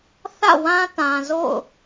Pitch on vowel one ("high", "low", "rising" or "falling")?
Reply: falling